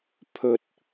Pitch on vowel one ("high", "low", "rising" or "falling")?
low